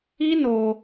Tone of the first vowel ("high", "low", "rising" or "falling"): high